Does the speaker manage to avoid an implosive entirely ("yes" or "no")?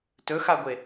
yes